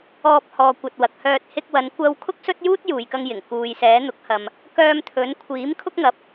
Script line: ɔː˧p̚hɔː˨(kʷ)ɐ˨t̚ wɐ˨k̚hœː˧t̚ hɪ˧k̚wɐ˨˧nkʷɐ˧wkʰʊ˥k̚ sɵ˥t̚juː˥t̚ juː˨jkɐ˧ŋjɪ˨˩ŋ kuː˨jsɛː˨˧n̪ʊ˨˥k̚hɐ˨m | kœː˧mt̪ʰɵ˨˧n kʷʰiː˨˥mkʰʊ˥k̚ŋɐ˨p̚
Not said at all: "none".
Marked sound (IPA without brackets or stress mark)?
kʷ